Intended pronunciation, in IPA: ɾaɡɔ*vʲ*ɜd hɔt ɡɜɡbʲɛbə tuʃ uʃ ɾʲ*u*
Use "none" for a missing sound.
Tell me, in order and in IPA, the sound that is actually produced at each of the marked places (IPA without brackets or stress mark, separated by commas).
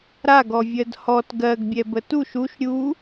vʲ, u